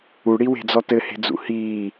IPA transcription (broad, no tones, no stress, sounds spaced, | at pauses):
u ɽ i w e̤ d͡z ɔ t ɘ h e̤ d͡z ṵ h iː